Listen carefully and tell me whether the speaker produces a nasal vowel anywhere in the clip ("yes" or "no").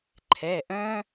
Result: yes